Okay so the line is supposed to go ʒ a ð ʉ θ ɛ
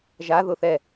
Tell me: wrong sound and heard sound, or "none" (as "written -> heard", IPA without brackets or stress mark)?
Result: ʉ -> ʊ